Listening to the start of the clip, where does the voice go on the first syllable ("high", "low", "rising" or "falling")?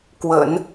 low